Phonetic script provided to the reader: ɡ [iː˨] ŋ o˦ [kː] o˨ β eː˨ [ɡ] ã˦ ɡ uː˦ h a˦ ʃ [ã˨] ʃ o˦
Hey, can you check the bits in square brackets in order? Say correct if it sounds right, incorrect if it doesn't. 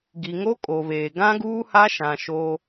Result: incorrect, incorrect, correct, correct

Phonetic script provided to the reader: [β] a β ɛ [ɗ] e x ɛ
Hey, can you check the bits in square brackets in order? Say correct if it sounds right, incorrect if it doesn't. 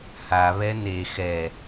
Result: incorrect, incorrect

